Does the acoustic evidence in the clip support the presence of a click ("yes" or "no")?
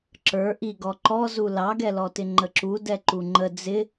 yes